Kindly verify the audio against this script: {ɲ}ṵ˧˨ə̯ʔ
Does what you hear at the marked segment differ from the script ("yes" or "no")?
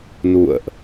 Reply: yes